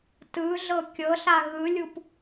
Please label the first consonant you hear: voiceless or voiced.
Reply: voiceless